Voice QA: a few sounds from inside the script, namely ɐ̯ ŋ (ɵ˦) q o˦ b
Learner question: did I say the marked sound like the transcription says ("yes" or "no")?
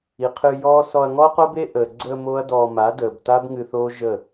no